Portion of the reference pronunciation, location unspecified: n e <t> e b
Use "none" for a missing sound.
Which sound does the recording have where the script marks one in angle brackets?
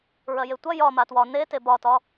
t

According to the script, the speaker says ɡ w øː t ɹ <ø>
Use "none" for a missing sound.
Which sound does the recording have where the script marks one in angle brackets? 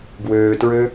ø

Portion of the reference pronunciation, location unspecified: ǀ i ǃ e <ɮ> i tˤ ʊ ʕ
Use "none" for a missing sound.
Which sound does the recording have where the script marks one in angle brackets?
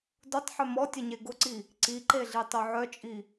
ɮ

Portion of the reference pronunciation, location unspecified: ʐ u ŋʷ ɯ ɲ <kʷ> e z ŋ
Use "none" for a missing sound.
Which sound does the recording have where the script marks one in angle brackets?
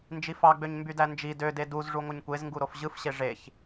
kʷ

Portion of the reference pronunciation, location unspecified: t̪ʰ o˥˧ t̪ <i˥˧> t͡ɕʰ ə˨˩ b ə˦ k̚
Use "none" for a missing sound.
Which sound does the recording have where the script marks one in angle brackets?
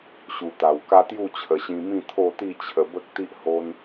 i˥˧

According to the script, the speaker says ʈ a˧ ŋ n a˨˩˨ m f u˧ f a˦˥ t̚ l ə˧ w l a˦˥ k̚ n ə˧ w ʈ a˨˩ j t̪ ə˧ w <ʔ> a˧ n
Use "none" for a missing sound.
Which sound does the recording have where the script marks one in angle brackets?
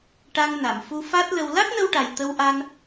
ʔ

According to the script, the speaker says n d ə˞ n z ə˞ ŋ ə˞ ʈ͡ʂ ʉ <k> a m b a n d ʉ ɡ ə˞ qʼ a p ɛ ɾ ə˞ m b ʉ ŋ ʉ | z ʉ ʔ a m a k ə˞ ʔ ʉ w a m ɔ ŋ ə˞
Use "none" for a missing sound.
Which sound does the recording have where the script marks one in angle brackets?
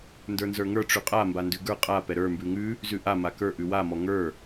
qʼ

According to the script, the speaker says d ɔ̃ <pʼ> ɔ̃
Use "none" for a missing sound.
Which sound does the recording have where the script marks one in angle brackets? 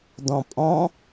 pʼ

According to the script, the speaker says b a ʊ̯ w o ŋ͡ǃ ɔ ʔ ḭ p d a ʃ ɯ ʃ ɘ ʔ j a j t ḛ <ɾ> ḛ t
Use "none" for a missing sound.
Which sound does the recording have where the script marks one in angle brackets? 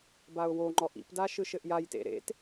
ɾ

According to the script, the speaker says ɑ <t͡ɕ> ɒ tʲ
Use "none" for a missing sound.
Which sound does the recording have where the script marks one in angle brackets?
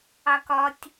k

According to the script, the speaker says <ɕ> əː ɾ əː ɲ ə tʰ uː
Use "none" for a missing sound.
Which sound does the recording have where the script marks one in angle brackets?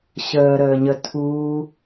ɕ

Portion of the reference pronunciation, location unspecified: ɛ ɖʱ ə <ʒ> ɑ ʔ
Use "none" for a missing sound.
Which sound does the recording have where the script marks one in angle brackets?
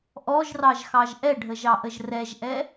ʒ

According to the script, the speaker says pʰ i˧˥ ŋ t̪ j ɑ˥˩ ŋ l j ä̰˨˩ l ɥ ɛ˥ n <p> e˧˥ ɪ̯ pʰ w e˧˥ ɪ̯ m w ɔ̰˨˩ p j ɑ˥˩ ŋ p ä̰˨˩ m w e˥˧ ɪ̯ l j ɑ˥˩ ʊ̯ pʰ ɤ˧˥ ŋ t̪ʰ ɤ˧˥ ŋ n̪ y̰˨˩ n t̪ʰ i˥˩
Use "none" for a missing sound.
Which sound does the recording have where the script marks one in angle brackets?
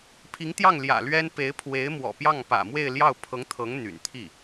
p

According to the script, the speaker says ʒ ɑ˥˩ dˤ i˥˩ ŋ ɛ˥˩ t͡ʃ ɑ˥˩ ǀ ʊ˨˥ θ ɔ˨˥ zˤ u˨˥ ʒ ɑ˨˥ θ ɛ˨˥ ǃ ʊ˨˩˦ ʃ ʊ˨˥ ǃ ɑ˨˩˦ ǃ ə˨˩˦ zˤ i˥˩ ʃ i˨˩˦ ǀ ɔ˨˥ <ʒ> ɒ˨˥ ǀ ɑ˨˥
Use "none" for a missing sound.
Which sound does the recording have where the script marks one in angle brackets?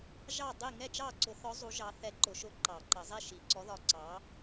ð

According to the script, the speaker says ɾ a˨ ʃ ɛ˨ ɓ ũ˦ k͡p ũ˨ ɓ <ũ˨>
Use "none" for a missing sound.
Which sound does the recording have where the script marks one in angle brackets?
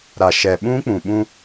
ũ˦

